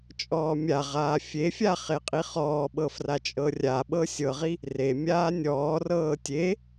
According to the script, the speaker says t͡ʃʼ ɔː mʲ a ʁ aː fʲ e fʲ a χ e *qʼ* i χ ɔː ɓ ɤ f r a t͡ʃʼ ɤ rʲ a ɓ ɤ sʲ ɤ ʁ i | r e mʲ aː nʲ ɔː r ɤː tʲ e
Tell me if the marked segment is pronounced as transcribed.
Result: yes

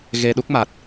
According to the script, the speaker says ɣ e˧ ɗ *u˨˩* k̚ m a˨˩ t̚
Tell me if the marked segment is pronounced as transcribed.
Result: no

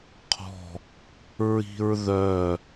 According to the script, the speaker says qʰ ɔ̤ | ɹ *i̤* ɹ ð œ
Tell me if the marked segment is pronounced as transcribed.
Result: yes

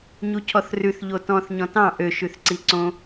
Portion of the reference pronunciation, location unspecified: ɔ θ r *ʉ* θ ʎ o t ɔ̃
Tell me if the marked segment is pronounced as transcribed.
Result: yes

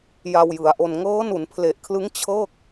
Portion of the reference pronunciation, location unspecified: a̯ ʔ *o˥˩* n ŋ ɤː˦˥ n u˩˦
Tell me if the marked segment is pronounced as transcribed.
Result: no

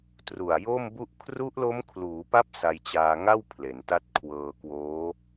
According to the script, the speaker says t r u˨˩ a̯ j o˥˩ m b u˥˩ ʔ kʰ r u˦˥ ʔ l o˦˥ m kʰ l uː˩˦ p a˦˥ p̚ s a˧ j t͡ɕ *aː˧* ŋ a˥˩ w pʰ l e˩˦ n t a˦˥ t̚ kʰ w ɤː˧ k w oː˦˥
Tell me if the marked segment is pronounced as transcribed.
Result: yes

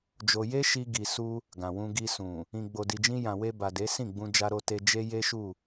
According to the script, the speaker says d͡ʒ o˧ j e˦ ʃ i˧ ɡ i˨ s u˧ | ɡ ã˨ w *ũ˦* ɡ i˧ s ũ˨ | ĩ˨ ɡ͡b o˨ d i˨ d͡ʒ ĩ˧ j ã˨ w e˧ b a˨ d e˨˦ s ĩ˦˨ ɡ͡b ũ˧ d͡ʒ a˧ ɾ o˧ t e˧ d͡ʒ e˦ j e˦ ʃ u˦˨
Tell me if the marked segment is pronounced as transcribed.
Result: no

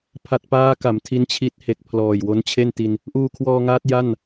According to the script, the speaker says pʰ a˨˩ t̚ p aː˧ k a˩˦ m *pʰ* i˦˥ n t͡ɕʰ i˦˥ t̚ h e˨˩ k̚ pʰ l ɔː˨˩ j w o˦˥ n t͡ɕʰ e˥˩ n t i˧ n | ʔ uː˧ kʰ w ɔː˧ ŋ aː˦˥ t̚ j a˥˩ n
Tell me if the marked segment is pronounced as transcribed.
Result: no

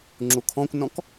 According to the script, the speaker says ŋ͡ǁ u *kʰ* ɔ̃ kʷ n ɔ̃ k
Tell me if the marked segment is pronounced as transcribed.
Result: yes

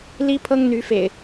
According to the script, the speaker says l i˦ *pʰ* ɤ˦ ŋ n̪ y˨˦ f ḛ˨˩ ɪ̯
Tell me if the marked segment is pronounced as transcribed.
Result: yes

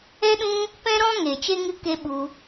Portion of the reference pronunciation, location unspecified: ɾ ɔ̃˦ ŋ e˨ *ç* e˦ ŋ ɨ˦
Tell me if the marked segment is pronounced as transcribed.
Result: no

